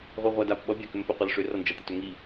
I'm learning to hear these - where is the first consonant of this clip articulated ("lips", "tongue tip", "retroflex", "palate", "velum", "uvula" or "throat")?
uvula